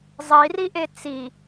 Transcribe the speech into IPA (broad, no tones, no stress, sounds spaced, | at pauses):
zˤ i r i ʔ e t͡s i